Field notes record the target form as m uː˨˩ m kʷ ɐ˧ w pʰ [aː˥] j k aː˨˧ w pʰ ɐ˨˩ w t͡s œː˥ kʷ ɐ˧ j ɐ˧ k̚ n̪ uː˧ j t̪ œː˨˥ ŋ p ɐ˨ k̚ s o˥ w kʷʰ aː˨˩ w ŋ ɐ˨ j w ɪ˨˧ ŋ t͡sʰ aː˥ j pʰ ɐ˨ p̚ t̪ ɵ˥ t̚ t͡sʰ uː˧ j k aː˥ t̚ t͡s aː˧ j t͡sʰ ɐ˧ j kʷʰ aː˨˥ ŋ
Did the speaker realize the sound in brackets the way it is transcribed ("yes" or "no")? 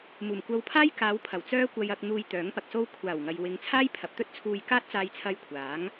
yes